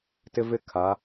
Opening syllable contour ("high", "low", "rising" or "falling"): high